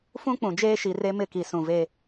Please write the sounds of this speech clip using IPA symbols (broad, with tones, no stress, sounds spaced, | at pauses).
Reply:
f ũ˦ k͡p ũ˨ d͡ʒ eː˦ ʃ i˨ r e˦ m ɪ˦˨ k i˨ s ũ˨ v e˦